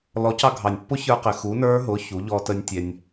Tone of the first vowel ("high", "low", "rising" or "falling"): rising